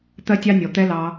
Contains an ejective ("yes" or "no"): no